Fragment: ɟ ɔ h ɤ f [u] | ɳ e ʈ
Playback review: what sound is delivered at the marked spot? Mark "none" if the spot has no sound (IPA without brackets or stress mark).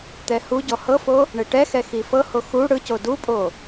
o